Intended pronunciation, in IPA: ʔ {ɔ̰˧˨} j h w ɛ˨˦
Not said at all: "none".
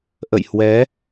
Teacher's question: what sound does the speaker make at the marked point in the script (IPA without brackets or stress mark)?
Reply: ə̰˧˨